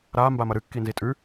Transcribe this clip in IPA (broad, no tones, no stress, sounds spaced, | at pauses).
ɾ a m b a m ɐ ɾ ɨ kː i n z i tʼ ʉ